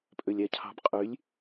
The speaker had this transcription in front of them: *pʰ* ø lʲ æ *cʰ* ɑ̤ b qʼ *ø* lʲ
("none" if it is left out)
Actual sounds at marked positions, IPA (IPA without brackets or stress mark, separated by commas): pʼ, cʰ, y